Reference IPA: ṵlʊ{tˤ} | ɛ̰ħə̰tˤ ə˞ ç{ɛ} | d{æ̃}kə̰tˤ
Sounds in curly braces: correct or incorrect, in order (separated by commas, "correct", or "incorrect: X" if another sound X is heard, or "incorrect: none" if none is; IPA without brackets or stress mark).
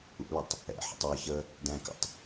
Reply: correct, incorrect: ə, correct